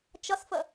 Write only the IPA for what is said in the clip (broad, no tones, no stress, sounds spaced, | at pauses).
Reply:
t͡ʃ ʌ s f ə